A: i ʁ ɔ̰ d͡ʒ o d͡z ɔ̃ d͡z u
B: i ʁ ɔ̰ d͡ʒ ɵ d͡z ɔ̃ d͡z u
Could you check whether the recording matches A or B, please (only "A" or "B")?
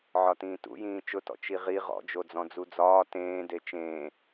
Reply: A